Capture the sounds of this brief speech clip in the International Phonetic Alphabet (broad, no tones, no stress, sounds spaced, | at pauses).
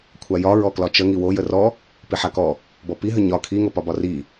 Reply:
kʷʰ a j ɒ ɹ ɔ k l ɒ t͡ʃ ə ŋ i w o j ə r ɔ | p i ħ a k ɔ | b ɔ p i ɦ ə ɲ ɒ kʰ i ŋ o p ɒ b ɒ r i